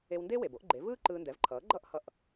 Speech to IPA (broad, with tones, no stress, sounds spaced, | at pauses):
e˧ w n d e˥ w e˩ b o˩˥ ʔ ɡ͡ǃ e˩˥ v ɯː˥ ǃ ɯː˧ n d ɛ˩˥ v ǃʰ ʌː˩˥ ɡ͡ǃ ʌ˥˩ ʔ h ʌ˥˩ ʔ